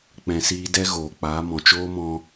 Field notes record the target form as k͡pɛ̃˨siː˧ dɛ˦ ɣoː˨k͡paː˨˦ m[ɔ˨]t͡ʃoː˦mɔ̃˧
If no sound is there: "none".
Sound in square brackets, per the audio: ɔ̃˨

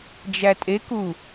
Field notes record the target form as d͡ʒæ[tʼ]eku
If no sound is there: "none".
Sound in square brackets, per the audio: tʼ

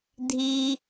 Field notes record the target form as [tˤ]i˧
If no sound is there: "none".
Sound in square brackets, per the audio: dʱ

